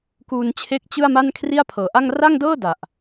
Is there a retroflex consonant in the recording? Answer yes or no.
no